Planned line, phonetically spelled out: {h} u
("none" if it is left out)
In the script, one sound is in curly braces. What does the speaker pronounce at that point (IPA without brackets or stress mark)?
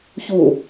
ç